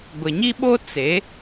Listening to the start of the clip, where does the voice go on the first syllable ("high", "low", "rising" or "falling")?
low